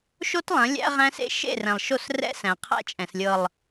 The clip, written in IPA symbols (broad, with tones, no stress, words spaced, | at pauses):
ʃo˦tlˠɐ̃˨˦ lʲæ̰˦ ʁæ̃˦sḛ˦ ʃḛ˦˨rɛ̃˨lˠʃo˦˨srɛ̰˦ sæ̃˨qʰæ̰˦t͡ʃʼɛ̃˨slʲɤ˨lˠ